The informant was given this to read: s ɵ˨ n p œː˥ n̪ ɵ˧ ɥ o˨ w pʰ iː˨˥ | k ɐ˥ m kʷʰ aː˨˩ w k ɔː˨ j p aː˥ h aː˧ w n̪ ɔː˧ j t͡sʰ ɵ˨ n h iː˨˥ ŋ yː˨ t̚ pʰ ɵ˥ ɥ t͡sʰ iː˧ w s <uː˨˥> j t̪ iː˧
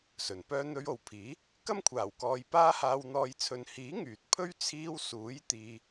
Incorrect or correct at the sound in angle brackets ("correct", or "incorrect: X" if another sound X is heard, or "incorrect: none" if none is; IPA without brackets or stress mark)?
correct